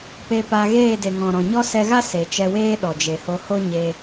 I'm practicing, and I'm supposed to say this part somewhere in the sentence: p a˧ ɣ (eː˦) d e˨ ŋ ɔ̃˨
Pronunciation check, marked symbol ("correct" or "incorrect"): incorrect